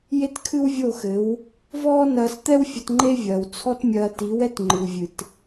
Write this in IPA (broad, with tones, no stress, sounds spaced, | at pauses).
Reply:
j e˦ t kʰ ɨ˦ w vʲ o˦˨ x ɘ˨˦ w | v ɔː˦ n ɐː˧ s t̪ ɛ˦ w fʲ ɐ˧ t ŋ͡ǃ e˦ vʲ ɐː˨ w t͡sʰ ɔ˦ t mʲ ɐː˧ t i˨˦ w ɛ˦ t ŋ͡ǃ ɨ˨ w vʲ ɨ˨ t